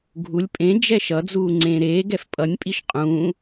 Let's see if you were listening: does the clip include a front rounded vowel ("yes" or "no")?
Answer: no